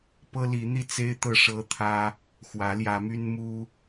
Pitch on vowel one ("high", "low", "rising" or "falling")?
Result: high